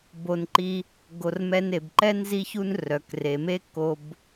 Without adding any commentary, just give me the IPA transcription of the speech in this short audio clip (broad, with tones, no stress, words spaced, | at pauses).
bo˩nǃi˨ | ɡo˩rmɛ˨n e˩bǃɛ˥nzi˦çu˦n rœ˩kre˩me˦ ko˨b